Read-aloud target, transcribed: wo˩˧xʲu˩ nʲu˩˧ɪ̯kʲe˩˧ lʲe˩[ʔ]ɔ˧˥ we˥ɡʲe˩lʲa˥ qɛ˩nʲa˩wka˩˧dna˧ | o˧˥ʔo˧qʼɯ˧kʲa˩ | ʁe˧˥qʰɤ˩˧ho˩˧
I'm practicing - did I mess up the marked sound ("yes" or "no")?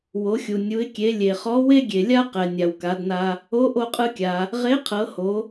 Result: yes